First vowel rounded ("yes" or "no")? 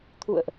yes